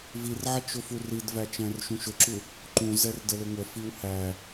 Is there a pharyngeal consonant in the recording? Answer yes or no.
yes